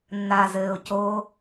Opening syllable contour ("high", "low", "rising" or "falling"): low